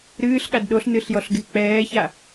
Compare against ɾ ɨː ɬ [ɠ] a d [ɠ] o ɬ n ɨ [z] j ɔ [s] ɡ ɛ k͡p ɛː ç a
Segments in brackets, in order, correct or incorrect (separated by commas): correct, incorrect, incorrect, incorrect